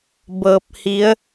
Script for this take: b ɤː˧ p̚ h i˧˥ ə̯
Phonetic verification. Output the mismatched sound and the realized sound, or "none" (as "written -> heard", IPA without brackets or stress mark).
none